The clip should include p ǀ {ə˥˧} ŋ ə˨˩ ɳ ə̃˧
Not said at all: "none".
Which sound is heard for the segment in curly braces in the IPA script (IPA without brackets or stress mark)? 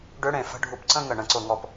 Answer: ə̃˥˧